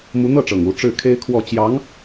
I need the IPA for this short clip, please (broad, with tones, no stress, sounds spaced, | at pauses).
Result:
m u˧˥ n̪ ɤ˥˩ ʈ͡ʂ ɤ˨˩ ŋ u˧˥ ʈ͡ʂ ɻ̩˥˩ kʰ e˥ ɪ̯ kʰ w ɔ˥˩ t͡ɕ j ɑ˧˥ ŋ